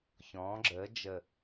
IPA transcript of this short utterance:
çɔ̃ː˩˧ɡ͡ǁəː˩˧d͡ʒə˨˩

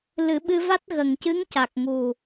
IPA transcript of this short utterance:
lɨ˨˩˦ɓɨ˧va˦˥t̚ɣə˨˩ŋ cɨ˧˥ŋca˨˩k̚ŋu˨˩

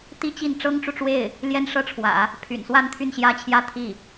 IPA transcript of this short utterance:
t̪i˥t͡ɕi˥˩n ʈ͡ʂɤ˥ŋʈ͡ʂu˨ʈ͡ʂwe˥˩ɪ̯ | ljɛ˥nʂɤ˥˩ʈ͡ʂʰwä̰˨˩˦ | pʰy̰˨˩nswa˥˧n t̪ʰy˥˩nɕjä˥t͡ɕʰjä˥ t̪ʰi˥˩

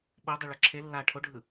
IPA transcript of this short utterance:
ɓodˤiɭʌ ǁʰe lːa ʈʰoɖʱɯ

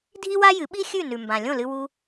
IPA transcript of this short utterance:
dʱi˥wa˥jɨ˩˥ɓi˥ xʲʉ˥˩ nʉ˩mbã˩ lʲõ˥˩lɨ˧ wu˧

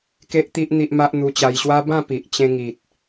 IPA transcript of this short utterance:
ke˦ʔt̪i˦ʔ n̪i˦ʔma˦ʔ n̪u˧t͡ɕa˧jɕwa˦ bã˥˧pi˨ʔt͡ɕẽ˧ ŋi˨t̚

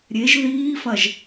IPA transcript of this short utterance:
ɾʲeʒ ðiːfɐʒ

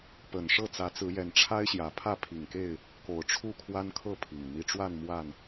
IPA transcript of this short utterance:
pə˨˩nʂɤ˥˨t͡sä˨˦t͡sɹ̩˨˦ jɛ˨˩nʈ͡ʂʰa˦ɪ̯ ɕjä˨˩pʰä˥˨pʰi˨˩ŋke˥˨ɪ̯ | ko˨˩ʊ̯ʈ͡ʂʰu˥˨kʰwa˦nkʰɤ˥˨ pʰi˨˩ŋn̪i˥˨ ʈ͡ʂwa˥˨n mwa˥˨n

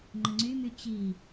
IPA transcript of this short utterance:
ŋ͡ǃəŋ͡ǀymy t͡ɕi

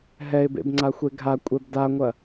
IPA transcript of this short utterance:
ɦɛɪ̯bḛb ŋ͡ǀaxʷeɡʱakʷʼɛb daŋʷɐ

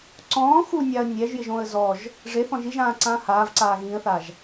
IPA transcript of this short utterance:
ǀɔ̃ː xunʲaə̯ nʲɛʒjɪʒõə̯ zɔʒ | ʐeθɔ̃ʒ iʒãːǀãː haːvǀaː ɣĩə̯θaʒ

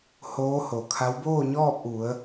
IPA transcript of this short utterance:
hoː˧˥ho˩kʰa˧˥w boː˥˨ɲɔː˥˨p̚ʔu˩˧ə̯

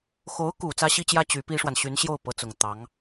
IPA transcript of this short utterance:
xo˧˥ʊ̯ku˨˩ t͡sä˥ɕi˥t͡ɕjä˥ t͡ɕy˧˥pi˥ʂwa˨n ɕy˧˥nɕjo˥˩ʊ̯ pɤ˧˥t͡sʊ˨˩ŋ t̪ɑ˧˥ŋ

